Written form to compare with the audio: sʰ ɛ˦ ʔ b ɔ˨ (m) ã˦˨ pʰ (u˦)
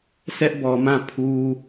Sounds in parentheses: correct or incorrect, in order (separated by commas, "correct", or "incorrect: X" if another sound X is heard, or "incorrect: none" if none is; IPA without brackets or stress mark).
correct, correct